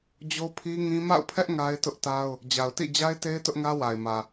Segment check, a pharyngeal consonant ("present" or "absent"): absent